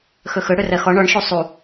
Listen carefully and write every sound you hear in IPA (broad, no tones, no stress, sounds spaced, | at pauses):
x ɵ x ɵ ɽ ɵ r ɜ x ɔ ɳ ɔ ɳ ʃ u sˤ u